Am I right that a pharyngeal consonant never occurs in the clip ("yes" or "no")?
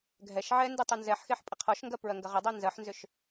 no